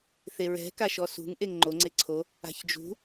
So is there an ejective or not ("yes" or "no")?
no